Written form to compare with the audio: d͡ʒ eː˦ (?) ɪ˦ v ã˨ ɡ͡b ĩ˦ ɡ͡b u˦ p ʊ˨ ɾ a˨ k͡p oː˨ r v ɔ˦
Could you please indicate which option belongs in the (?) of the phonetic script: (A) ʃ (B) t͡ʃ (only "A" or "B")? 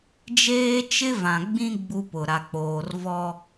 B